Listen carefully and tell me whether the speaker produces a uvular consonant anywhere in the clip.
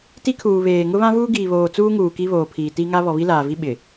no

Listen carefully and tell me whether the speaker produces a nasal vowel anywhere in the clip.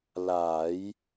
no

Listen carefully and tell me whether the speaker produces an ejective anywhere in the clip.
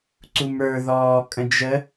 yes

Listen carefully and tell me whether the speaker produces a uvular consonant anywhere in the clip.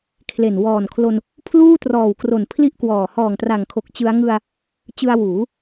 no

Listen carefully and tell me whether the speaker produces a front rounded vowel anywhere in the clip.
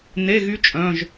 yes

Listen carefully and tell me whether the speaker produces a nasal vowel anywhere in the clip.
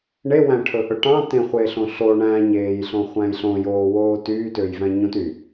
yes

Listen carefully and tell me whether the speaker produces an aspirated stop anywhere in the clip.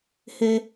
no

